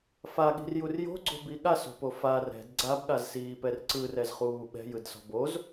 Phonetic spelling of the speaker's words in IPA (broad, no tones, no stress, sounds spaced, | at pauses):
f a ɠ i̤ r j u r j o̤ ɡ͡ǀ o̤ b i ɠ a s o̤ p o f a r ɛ̤ d ɡ͡ǀ a b ɠ a z s iː p ɛ r ǀ ɯ r ɛ z χ uː ɓ ɛ̤ j ɯ d s ɔ̤ b o z